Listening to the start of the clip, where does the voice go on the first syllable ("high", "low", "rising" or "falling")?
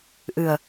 low